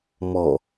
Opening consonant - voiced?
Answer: yes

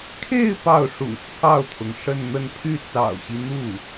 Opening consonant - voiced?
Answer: no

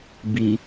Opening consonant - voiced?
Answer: yes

